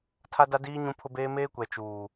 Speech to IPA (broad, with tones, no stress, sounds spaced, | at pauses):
tʰ a˦ d a˦ d iː˦ ɲ ũ˦ pʰ ʊ˦ b eː˦ m eː˦ kʷ ɛ˨ t͡ʃ uː˨